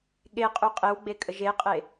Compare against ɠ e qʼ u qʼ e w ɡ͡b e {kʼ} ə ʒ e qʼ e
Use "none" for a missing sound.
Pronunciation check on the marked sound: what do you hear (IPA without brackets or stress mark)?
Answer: kʼ